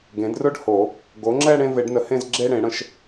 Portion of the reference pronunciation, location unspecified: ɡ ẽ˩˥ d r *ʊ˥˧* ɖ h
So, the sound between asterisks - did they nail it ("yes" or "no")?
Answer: yes